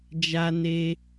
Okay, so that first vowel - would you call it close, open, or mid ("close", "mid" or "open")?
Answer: open